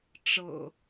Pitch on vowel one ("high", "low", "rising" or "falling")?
low